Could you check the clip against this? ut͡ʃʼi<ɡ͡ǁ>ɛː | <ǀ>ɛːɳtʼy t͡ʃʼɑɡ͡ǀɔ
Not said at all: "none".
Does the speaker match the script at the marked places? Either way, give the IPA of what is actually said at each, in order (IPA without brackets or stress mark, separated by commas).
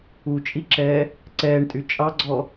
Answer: ǁ, ǀ